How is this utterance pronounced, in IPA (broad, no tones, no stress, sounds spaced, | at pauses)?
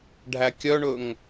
ɖʱ æ kʲ œ ɳ ɵ ŋ